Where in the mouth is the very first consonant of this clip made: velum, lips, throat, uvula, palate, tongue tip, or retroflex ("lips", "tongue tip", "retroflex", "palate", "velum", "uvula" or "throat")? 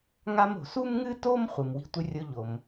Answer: velum